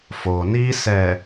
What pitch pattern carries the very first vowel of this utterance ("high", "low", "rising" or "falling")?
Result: low